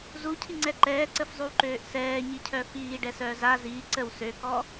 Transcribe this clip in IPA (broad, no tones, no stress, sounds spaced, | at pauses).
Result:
z u cʰ i ŋ͡ǀ ɛ ǃ ɛː ǀ ə f zˤ y w ǃ øː ʔ s ɛː ɲ i cʰ œ f iː ɖ ɛ s œː z a z iː ǀ ə w s ø k ɔ